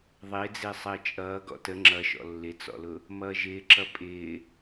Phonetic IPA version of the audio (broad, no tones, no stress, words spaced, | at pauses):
ðˤɪːd͡zɪː sˤəːt͡ʃʼʌː ɡɔ̰tə ŋ͡ǁʌʃɔ̰ lːɪt͡sɔ̰lʊ | mʌːʒɪːǁʌ pʼɪː